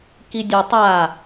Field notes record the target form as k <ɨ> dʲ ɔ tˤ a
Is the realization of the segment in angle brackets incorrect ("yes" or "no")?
yes